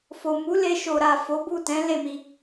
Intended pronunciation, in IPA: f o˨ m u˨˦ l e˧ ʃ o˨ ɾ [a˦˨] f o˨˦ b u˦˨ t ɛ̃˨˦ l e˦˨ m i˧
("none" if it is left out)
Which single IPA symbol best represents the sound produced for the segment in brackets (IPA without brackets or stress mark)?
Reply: a˨